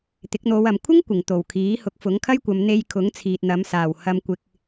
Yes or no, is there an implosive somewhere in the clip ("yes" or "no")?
no